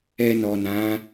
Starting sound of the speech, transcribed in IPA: ɛ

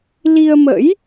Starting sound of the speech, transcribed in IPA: l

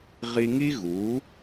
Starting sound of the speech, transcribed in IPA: ʁ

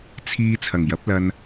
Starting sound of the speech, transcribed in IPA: t͡sʰ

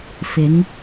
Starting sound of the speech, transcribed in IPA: f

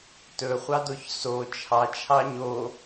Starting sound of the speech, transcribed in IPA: t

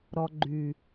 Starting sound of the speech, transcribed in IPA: ɾ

